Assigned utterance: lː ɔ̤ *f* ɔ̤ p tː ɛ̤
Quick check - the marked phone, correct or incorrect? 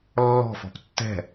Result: correct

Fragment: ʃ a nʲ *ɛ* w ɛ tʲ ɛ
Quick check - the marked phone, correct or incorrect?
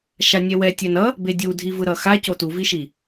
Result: correct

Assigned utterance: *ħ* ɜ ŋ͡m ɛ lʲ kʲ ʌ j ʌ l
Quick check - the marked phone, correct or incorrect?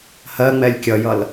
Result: incorrect: h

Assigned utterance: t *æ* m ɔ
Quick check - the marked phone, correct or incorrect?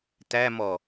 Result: correct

